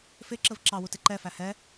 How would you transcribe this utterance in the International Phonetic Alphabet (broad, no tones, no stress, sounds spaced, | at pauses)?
f ɪ ǁ ə v ǁ ɑ w u t ɪ ǃ ɛ f æ h ɛ